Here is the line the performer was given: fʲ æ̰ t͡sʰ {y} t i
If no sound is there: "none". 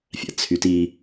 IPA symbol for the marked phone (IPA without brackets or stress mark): y